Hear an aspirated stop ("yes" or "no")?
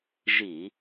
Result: no